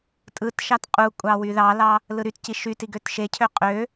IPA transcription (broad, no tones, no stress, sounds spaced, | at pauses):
tʼ ɯ t ʃ ɑ t qʼ u kʷʼ ɑ w y ð ɑ l ɑ | l ɯ ɾ y t c i ʃ y t i ɡ ø t ʃ e cʰ ø qʼ ø